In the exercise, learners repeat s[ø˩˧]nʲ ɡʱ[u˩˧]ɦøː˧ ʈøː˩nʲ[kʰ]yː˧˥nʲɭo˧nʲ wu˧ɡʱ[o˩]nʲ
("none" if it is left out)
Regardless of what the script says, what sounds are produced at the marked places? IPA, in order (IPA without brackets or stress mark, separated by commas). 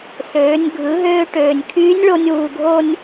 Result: øː˩˧, ɯ˩˧, kʰ, o˥